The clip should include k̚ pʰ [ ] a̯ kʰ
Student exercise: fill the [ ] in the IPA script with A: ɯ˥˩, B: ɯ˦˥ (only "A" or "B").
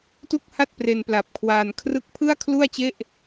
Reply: A